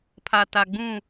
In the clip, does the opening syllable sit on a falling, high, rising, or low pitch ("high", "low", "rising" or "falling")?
low